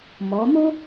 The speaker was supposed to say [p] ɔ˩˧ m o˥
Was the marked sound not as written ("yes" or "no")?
yes